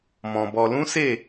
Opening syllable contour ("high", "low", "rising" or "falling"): low